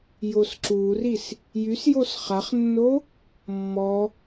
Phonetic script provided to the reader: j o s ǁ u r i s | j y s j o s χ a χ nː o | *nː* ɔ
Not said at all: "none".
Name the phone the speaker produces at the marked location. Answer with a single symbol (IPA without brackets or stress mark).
mː